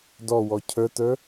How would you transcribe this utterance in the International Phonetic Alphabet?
d ɔ w ɔ cʰ ə˞ t ə˞

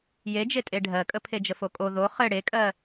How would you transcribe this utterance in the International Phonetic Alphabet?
j e d͡ʒ e tʼ e ɖʱ ɜ kʼ ə pʰ e d͡ʒ ə f o kʼ o ð o χ ɘ ɽ e kʼ ɜ

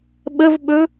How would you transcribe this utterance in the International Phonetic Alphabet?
ɓ ə v ɓ ɵ

